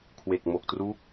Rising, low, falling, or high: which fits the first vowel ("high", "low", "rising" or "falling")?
low